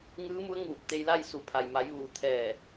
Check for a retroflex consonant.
absent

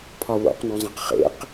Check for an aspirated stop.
present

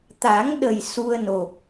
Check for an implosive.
present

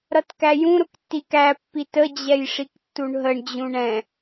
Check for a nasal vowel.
present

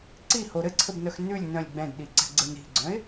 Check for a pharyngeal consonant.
absent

